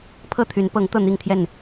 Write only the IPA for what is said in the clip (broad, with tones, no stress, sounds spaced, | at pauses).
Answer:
pʰ ɤ˥˨ t̪ʰ y˨˦ n p ɤ˨˦ ŋ t̪ ɤ˥˨ n̪ i˥˨ ŋ t̪ʰ j ɛ˥˨ n